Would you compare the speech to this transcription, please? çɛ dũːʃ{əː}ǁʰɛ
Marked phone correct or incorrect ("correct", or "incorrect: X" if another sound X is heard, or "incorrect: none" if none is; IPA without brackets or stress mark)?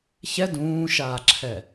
incorrect: aː